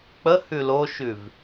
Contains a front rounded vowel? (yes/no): no